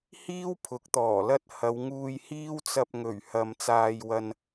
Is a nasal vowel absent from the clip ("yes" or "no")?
yes